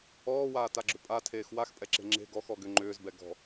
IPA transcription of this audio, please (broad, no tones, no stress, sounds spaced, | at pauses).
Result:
ɔː w aː t a ɡ͡ǁ ʏ pʼ a tʰ eː x w a x pʼ ɛ ǁ e̤ ŋ͡ǁ e̤ ɡ ɔ x ɔ ɡ ʏ ŋ͡ǃ ʏː z b ɛ ɡ ɔ̤